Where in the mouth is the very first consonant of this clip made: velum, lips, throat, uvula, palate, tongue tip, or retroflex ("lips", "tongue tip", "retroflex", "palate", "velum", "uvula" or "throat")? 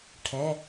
retroflex